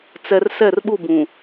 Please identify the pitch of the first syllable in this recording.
low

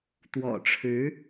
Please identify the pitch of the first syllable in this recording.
low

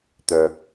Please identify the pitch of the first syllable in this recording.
low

